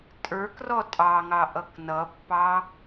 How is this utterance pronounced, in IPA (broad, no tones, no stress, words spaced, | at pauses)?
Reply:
tʼə˞k rɔtʼɑŋɑʔ ʌknʌpːɑ